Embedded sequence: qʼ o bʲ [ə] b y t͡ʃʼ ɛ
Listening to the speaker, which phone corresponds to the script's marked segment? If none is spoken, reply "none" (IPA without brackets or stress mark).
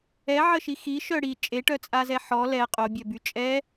œ